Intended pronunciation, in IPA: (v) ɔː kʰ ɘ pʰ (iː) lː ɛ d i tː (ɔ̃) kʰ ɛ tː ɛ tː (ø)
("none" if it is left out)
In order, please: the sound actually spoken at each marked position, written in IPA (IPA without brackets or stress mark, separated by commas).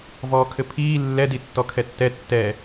v, iː, ɔ, ɛ